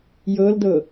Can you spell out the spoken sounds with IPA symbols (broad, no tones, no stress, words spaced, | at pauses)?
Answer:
jɤldɤ